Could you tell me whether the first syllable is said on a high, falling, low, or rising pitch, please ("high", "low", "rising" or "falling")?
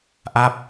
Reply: falling